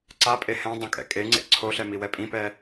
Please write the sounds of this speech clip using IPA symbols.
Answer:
ǀ a pʼ e h ɛ̃ dˤ õ kʼ ɛ̰ kʼ e ŋ͡ǀ ḛ ǀʰ o ɬ ɛ m i w ɛ pʼ ĩ p ɛ

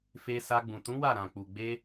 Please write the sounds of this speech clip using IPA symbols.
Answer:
f e˧ s a˧ ɡ͡b ũ˨ t ũ˨˦ w a˦˨ ɾ ã˨ k͡p u˨ ɡ͡b e˧

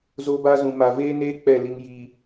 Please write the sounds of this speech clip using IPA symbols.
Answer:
z o˦ b a˦ z ũ˨ m a˨ v eː˦ n eː˦ k͡p ɛ˦˨ l i˦ ŋ j iː˦

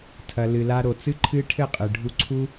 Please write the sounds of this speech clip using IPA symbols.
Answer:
tʰ ɐ˨ l ɨ˨ l a˧ ɾ o˨ t͡s ɨ˦ ǃʰ ɨ˦ ʈʰ ɘ˦˨ qʼ ɨ˨ ɖʱ u˧ ǀʰ u˦

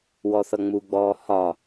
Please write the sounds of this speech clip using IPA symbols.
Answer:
w ɔ θ ʌ ŋ͡m u ɡ͡b ɔː h ɒ

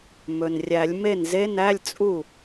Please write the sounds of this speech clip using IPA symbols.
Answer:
m ɵ˩ n rʲ æ˨˩˦ lʲ m e˥˩ n z e˧˥˧ n æ˧˥˧ lʲ t͡sʼ u˥˩

